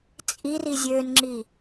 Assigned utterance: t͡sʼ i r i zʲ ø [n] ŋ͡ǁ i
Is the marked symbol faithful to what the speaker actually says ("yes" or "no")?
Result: yes